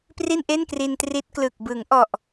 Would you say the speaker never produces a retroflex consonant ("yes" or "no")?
yes